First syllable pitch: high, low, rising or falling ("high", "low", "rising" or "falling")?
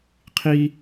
high